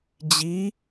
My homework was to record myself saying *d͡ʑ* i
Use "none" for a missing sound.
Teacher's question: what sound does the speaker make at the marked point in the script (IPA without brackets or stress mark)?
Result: d͡ʑ